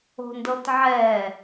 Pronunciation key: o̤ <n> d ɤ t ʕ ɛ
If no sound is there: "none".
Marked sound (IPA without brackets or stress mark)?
n